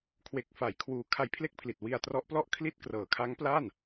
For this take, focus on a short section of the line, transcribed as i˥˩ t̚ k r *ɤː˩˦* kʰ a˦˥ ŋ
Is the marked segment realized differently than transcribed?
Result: no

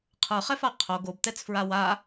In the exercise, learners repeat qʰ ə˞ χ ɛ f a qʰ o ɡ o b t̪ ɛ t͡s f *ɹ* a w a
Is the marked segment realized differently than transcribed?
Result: no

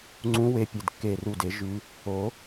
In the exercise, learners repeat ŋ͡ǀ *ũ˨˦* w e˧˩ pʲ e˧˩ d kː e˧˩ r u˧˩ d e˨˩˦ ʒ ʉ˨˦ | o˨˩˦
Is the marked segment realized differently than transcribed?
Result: no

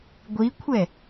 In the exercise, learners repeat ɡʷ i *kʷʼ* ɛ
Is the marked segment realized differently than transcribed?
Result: yes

